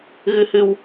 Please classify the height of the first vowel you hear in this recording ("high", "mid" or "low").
high